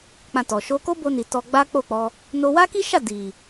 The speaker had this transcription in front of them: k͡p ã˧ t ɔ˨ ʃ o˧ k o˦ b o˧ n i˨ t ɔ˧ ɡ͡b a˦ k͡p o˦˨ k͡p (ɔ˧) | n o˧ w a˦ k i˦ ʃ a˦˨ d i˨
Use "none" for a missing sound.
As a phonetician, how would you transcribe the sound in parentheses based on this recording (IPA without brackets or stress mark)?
ɔ˧